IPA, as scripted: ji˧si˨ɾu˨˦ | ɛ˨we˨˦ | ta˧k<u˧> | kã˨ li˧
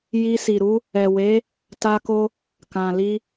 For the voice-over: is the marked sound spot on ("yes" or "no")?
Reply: no